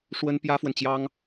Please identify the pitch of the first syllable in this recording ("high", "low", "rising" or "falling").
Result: high